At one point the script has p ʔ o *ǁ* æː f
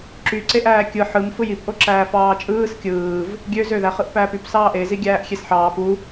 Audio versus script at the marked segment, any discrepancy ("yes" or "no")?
no